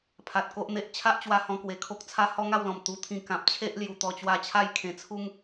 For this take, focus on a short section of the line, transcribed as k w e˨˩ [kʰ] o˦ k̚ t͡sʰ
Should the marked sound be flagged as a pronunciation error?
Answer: no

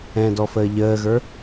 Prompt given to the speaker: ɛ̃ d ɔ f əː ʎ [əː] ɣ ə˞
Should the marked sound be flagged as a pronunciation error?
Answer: no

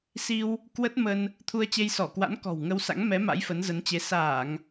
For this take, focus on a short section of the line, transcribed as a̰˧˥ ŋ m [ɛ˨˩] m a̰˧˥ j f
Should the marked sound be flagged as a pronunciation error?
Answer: yes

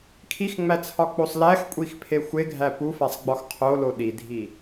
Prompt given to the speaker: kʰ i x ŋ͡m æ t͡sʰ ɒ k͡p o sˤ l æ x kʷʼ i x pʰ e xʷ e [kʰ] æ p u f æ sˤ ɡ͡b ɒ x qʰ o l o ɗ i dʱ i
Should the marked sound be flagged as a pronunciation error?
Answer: yes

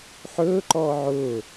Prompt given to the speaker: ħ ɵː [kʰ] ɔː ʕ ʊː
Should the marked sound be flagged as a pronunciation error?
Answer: yes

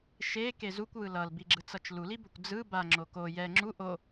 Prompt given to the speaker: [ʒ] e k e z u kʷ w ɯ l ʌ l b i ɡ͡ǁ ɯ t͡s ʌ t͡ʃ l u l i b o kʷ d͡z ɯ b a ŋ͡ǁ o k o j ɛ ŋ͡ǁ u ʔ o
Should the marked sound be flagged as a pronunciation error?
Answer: yes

